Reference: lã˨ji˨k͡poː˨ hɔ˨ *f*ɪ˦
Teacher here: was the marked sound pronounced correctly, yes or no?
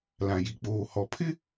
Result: no